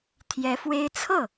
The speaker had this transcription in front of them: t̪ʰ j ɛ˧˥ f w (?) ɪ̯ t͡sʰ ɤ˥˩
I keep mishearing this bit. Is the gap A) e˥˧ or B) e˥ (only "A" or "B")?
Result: B